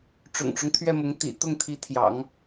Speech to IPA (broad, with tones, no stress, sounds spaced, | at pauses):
ʈ͡ʂ ʊ̰˨˩ ŋ ʈ͡ʂ ʊ˦ ŋ t̪ʰ ɥ ɛ˥˩ m ʊ˧˥ ŋ t̪ ḭ˨˩ t̪ ʊ˥˩ ŋ t̪ʰ i˧˥ t̪ʰ j ɑ̰˨˩˦ ŋ